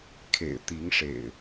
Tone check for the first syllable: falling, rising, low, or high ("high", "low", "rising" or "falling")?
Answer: low